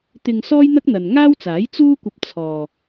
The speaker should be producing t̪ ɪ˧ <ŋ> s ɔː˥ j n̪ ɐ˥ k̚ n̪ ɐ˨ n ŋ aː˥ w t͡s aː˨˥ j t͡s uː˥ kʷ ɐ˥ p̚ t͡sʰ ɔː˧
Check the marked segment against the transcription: correct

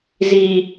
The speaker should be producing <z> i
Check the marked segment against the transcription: correct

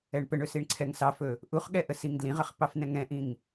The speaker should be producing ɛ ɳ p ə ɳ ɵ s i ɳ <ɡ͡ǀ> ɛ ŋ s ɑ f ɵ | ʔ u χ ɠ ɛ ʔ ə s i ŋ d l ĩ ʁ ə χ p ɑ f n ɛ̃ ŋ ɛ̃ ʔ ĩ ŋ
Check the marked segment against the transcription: incorrect: ǀʰ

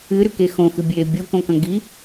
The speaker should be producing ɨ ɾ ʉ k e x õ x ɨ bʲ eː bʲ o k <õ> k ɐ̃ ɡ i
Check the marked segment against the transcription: correct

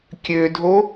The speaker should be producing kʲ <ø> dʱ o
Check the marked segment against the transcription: correct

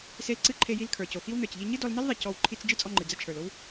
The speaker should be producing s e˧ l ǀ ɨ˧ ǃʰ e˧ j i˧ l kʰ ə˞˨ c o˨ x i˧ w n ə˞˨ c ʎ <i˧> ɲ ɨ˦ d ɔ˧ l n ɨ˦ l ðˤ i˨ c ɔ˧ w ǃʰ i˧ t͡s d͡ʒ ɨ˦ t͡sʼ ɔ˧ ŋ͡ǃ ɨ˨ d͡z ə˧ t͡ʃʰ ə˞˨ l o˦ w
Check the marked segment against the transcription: correct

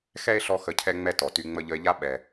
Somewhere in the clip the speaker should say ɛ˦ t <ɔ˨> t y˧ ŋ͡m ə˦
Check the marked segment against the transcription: correct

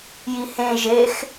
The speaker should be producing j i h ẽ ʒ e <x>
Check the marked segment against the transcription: correct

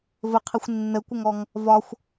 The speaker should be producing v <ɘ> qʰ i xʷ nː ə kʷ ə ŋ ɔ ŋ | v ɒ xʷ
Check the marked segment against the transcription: correct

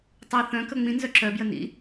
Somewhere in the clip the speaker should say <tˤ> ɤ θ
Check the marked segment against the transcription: correct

